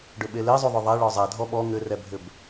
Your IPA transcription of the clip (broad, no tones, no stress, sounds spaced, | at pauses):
ɖ ʏ ɓ e l e zˤ u ðˤ ʏ ðˤ ɛ ɭ ɔ zˤ ɛ dʱ ɔ ɓ ɔ ŋ ʏ r ɛ bʱ ʏ b